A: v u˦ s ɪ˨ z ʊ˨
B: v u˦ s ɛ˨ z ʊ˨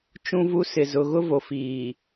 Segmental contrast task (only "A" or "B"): A